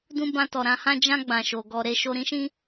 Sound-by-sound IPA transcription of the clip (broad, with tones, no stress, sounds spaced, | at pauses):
d ũ˦ b ã˦ t ɔ˧ ɾ ã˧ h ã˦ d͡ʒ ã˦ ɡ͡b ã˧ ʃ o˧ ɡ ɔ˧ ɾ e˦ ʃ o˧ ɾ ĩ˦ ʃ ĩ˦